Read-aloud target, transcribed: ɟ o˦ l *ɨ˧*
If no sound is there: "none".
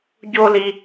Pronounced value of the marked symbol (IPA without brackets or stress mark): i˧